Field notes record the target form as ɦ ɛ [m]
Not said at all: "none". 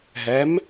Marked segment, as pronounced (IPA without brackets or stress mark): m